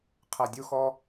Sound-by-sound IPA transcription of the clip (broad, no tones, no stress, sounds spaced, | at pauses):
qʰ ɛ dʲ u x ɔ